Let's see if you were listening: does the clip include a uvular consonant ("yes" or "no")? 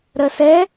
no